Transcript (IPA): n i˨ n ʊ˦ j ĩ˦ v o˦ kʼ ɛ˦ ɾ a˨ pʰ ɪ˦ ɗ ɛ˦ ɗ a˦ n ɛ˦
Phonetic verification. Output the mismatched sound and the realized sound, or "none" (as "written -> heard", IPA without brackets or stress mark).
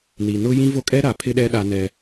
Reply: none